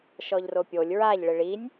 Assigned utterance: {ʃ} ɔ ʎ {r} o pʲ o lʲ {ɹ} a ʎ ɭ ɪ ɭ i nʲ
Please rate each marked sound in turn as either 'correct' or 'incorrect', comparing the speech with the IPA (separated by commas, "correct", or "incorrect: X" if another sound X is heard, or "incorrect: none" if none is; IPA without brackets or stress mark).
correct, correct, correct